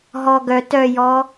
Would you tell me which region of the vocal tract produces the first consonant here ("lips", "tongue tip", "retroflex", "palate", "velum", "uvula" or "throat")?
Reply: throat